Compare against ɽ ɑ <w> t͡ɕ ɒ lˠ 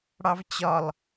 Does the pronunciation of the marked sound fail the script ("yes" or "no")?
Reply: yes